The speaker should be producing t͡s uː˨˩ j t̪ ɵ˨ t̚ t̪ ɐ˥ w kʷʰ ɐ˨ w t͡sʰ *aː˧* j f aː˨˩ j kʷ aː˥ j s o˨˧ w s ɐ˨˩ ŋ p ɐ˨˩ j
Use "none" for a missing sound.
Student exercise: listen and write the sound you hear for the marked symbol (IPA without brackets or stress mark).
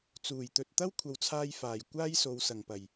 aː˧